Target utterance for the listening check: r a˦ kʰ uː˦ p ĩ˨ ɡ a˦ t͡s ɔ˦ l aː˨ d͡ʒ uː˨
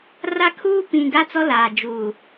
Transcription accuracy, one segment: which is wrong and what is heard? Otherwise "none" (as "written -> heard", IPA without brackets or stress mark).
none